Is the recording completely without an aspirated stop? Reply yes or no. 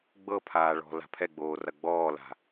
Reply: no